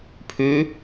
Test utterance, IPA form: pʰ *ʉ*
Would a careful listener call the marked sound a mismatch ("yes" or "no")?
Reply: no